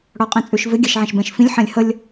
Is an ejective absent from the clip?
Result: no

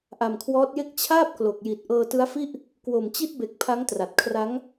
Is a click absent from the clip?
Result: yes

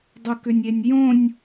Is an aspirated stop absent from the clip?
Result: yes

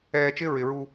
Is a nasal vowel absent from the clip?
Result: yes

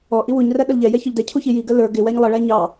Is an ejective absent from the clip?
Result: yes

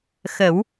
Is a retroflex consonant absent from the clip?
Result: yes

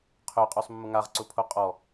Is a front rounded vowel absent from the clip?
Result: no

